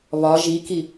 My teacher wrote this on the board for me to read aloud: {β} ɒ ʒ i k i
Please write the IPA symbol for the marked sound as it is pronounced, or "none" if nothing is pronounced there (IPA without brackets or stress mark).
β